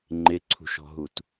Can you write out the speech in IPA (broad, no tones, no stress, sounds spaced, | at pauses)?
ŋ͡ǃ ɪ ǀʰ ṳ ʃ ɔ̤ ɦ u t